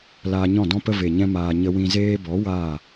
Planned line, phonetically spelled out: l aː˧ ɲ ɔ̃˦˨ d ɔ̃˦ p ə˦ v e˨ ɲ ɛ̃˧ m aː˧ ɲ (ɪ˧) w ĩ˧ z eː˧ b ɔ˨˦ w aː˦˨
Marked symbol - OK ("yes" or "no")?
no